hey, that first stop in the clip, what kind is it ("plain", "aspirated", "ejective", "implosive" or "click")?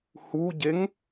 plain